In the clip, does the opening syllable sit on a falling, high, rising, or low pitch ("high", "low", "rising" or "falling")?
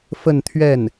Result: falling